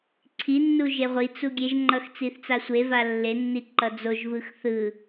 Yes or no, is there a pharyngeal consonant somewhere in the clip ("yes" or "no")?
no